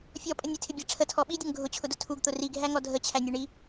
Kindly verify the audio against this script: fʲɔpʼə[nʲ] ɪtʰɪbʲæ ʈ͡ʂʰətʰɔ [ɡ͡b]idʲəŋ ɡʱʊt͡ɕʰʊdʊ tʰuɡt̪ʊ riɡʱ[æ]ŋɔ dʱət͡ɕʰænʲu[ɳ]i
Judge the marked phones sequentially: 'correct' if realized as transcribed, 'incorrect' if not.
correct, incorrect, correct, correct

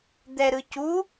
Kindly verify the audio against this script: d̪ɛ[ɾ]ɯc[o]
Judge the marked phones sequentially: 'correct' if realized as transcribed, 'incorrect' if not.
correct, incorrect

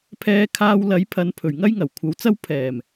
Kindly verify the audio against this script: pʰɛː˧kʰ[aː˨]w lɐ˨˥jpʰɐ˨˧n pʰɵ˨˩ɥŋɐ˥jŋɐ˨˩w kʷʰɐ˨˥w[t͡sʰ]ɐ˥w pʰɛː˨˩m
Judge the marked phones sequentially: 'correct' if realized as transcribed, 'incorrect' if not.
incorrect, incorrect

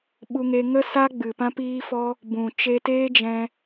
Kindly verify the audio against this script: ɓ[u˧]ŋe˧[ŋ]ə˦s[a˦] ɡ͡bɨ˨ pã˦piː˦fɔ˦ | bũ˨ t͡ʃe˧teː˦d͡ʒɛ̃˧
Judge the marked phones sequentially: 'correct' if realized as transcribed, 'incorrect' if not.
correct, correct, correct

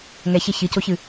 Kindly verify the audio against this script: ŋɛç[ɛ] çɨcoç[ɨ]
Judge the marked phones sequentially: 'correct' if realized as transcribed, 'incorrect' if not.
correct, correct

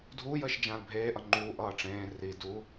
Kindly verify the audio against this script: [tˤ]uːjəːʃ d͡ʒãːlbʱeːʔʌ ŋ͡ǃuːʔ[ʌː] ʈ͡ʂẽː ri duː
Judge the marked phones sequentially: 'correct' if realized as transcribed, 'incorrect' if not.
incorrect, correct

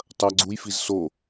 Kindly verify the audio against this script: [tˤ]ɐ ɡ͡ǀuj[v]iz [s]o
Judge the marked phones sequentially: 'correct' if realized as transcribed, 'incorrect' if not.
correct, incorrect, correct

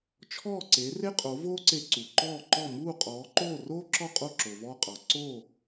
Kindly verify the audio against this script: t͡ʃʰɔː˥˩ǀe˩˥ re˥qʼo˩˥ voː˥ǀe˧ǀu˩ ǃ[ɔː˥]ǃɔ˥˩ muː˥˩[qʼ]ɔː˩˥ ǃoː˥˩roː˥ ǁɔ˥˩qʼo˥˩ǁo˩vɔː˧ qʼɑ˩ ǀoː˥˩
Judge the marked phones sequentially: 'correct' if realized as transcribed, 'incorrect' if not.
incorrect, correct

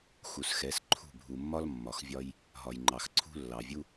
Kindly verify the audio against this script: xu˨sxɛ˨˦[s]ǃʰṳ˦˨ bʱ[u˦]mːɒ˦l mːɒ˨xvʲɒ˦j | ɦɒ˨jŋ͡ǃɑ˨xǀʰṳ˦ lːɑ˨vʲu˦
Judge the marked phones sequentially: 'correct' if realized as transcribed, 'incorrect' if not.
correct, incorrect

